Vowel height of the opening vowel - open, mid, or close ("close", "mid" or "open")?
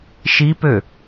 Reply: close